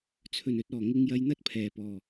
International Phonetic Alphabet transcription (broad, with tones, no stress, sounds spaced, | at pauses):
t͡sʰ ɵ˨˩ n ɵ˨ t̚ ɔː˨˩ ŋ ɪ˧ ŋ j ɐ˧ j n̪ ɐ˥ t̚ pʰ ɛː˨˩ p ɔː˨˩